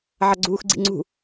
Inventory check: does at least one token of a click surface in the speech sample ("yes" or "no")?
yes